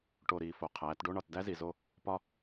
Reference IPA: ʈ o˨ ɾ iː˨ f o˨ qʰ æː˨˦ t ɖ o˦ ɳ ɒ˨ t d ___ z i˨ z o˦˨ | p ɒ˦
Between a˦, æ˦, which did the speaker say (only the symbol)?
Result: æ˦